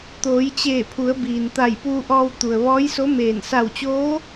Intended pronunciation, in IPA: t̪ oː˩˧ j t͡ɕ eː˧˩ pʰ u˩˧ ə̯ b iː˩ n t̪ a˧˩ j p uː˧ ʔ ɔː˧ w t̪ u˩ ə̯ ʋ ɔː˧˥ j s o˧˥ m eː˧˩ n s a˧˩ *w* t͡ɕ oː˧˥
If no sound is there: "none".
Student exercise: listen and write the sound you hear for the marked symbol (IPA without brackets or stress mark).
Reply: w